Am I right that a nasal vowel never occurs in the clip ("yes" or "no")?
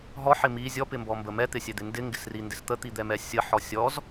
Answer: yes